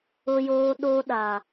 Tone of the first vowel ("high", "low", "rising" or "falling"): high